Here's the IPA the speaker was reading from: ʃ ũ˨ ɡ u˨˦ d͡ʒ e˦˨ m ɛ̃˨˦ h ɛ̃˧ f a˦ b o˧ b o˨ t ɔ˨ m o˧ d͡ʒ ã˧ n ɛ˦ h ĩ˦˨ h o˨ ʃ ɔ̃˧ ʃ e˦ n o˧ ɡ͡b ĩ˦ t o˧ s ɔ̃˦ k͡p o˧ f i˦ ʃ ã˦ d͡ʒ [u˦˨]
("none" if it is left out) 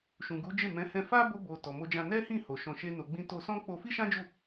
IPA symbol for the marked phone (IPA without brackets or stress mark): u˦˨